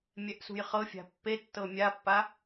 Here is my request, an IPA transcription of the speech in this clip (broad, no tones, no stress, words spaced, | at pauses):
mʲɛʔsṳjχɤfʲa̤ pːetːɤ mʲapːa